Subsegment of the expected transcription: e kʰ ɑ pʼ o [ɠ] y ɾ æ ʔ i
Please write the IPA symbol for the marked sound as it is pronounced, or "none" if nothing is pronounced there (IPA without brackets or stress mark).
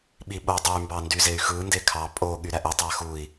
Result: ɠ